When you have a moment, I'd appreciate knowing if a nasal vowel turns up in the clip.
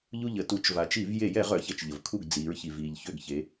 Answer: no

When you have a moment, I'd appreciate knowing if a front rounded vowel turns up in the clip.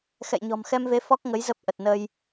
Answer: no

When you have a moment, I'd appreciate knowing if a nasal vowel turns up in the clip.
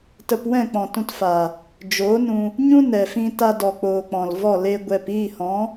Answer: yes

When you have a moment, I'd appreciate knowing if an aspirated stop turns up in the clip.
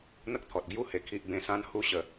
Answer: yes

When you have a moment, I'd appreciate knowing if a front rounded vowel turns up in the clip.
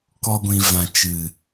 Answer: no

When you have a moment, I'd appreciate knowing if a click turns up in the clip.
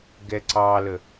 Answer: yes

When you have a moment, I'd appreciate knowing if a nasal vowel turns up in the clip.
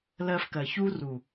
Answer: no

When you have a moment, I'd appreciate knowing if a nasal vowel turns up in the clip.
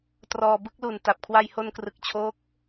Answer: no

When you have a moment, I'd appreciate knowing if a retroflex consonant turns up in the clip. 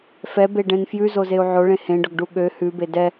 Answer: yes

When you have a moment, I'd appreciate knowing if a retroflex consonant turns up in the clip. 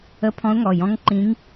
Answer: no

